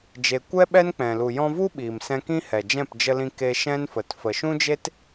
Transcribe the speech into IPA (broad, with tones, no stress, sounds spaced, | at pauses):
d͡ʒ e˧ kʷ ɛ˦ ɓ ɛ˦ n k͡p ɛ̃˨ l u˨ j ɔ̃˧ v u˦ ɓ iː˨ m s ɛ̃˧ k ĩ˦ h ɛ˨ d͡ʒ ɛ̃˦˨ p d͡ʒ ə˧ l ĩ˧ k e˧ ʃ ɛ̃˦ n f ə˨ t f ə˨ ʃ ũ˦ d͡ʒ e˦ t